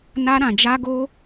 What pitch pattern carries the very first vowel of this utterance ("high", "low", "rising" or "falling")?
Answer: high